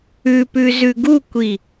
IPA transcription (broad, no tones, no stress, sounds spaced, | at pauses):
ʉ p ʉ z ʉ ɡ u kʷ i